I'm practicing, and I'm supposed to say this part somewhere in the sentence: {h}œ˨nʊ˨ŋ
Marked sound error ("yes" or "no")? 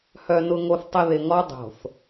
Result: no